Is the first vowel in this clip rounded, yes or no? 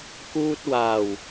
yes